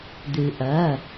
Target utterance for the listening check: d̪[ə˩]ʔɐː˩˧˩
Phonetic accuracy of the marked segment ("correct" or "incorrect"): incorrect